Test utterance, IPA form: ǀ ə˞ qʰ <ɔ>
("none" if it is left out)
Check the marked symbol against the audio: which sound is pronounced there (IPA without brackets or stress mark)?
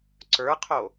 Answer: o